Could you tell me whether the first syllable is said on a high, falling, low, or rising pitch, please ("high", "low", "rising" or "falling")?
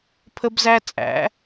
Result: high